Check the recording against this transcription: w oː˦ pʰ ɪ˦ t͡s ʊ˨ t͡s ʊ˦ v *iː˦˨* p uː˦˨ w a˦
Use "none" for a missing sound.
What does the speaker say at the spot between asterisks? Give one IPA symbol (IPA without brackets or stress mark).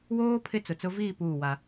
iː˦˨